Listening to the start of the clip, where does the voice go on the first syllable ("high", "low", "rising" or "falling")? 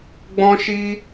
high